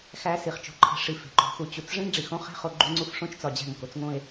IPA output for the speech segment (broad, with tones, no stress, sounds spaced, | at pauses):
x æ˧ s i˨ χ t͡ʃ o̤˧ ǃʰ e̤˧ ʂ i˧ f e̤˨ ǃ o̤˧ x u˧ t͡ɕ u˧ t͡s ʐ ẽ˦ ŋ ɖ͡ʐ i˨ x õ˦ χ e̤˦ χ o˧ ɡ͡ǃ u˦ ŋ͡ǀ u˦ f ʂ õ˦ t͡ʃ t͡s ɒ˧ d͡ʑ æ̤˦˨ ŋ k o˦ t͡s ŋ õ˦ e̯